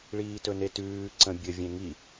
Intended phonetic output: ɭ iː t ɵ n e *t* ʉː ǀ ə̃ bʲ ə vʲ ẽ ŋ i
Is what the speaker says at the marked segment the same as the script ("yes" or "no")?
yes